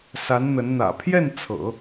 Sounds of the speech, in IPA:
s a˧˥ n n̪ ə˧˥ n n̪ ä̰˨˩ pʰ j ɛ˥˩ n t͡sʰ ɤ̰˨˩˦

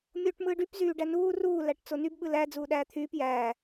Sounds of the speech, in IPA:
mʲ oː ʈ m ɯː ɖ y p z yː ɖ æ n uː r uː l æ ʈ t͡s o n y b ɓ ɯ l æ d͡z uː ɗ æː t̪ʰ yː p j æː

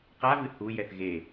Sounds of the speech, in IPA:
q a v ɨ h u j ɛ θ ɣ e

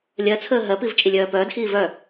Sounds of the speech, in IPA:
lʲ ɜ t͡sʰ əː ɦ ɜ p i v t͡ʃʼ i lʲ œː p œː d x iː v œ

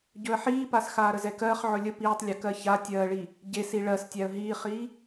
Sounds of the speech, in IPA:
ɟ ɵ ə̯ ħ iː p a s x aː ɾ ə z ɛ k ɜː χ ʕ ɵ lʲ ə p iː tˤ lʲ æ k ɜ ç a tʲ ɜː ɭ i | ɟ e s i ɭ ɜ s tʲ æ ə̯ ɦ iː χ iː

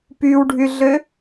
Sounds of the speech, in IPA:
p y w ɖʱ y ɮ ø

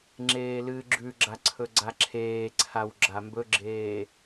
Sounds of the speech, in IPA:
ŋ͡ǁ eː l ɨː ɡ͡ǁ ʉ ɡ͡ǁ a ǀʰ ɵ ɡ͡ǀ a ǁʰ eː ǀʰ a w ɡ͡ǁ a m b ɵ ɡ͡ǁ eː

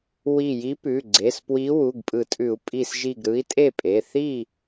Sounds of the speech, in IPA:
w i˧˩ j i˧˥ p ʉ˩˧˩ ɡ͡ǀ e˩˧˩ s p w i˧˥ w u˩˧˩ ɡ pʼ ɯ˨˩˦ tʼ ʉ˨˩˦ u̯ pʼ i˧˩ s ʒ i˧˩ ɡ ɾ ɯ˧˥ i̯ tʼ e˥˩ pʼ e˩˧˩ θ i˥˩

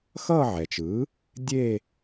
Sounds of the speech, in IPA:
x ʌː˥˧ ʕ ɛ˩ t͡ʃ ɯː˩˥ | dʲ eː˥˧

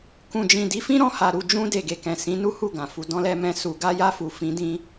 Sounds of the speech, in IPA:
k ũ˨ d͡ʒ ĩ˨ d i˨˦ f ĩ˦ ɾ ɔ̃˦˨ h a˨ ɾ u˨ d͡ʒ ũ˧ d e˨ ɡ e˨ k ɛ̃˨ s ĩ˨˦ n u˦ h u˦˨ ɡ ã˨ f u˨ d ɔ̃˧ l ɛ˧ m ɛ̃˧ s u˨ ɡ a˧ j a˧ f u˨ f ĩ˨˦ d ĩ˦

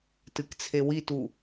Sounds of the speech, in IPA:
t ɨ k t͡sʰ e w i t u

